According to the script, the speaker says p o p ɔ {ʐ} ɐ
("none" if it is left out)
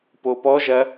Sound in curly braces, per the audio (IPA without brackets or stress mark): ʒ